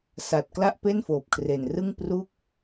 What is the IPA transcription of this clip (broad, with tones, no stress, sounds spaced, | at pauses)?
s a˨˩ t̚ k l a˥˩ ʔ p e˥˩ n f oː˨˩ p̚ kʰ r e˨˩ n r ɯ˥˩ ŋ p r u˥˩ k̚